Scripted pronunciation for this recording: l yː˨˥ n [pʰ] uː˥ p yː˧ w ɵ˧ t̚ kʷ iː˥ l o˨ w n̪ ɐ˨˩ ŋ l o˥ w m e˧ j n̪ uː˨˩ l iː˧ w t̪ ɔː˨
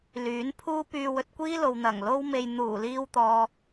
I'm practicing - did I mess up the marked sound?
no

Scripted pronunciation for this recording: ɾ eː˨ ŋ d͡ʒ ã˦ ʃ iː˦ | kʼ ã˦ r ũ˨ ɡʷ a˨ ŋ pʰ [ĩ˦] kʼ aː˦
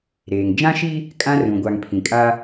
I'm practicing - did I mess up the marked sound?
yes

